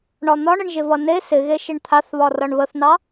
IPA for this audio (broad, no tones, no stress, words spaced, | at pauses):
ɳɒn̪ɒɳ əɳʒɪvʌne sɪɣeʃɪɳ t̪ʰaθβɒ rʌɳβəθnɑ